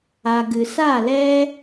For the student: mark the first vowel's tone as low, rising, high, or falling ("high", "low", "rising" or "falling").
low